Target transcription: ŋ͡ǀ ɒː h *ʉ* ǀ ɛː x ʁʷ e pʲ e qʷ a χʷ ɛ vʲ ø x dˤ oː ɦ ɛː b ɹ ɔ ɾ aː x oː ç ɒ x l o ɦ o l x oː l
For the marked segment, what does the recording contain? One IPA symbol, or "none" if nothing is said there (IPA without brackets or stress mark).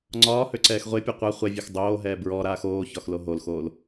ø